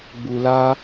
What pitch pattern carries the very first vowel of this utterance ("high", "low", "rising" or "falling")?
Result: low